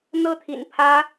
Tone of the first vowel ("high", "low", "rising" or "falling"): high